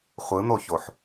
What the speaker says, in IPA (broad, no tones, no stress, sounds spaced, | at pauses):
χʷ ɯ n̪ o ç o ħ